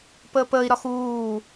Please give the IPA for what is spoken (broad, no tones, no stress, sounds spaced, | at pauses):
p əː p əː i̯ ɾ ɒ x uː